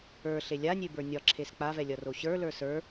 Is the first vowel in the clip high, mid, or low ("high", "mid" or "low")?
mid